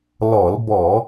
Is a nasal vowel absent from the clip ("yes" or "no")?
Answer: yes